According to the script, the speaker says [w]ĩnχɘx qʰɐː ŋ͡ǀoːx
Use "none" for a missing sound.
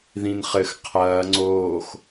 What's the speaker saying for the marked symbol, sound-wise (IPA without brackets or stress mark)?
ð